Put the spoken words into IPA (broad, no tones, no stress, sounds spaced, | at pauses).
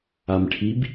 a m ʈʰ i b